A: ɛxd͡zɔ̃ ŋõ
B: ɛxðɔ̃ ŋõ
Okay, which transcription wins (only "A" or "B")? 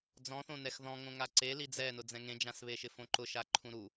B